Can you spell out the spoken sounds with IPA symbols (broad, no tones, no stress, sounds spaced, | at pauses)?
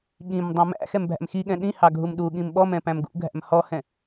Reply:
ɠ ĩ m dˤ ũ m æ̰ x ɛ m bʱ æ̰ m x i ɠ ɛ̃ ɗ ĩ h ɑ ɡʱ u m ɗ u ɠ ĩ m ɓ ɔ m ɛ̃ p æ̃ m ɡ ṵ ɡʱ æ̰ m h ɔ h ɛ̃